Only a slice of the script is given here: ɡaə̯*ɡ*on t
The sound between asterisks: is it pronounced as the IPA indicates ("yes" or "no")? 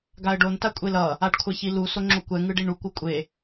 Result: no